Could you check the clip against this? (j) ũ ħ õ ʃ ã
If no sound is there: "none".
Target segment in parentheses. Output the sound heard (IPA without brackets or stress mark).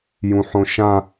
j